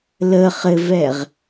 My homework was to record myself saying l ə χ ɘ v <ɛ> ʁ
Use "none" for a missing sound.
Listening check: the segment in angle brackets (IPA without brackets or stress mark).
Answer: ɛ